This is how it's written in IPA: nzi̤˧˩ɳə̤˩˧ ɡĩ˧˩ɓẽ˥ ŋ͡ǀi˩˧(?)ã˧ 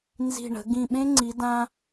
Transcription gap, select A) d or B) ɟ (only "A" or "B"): A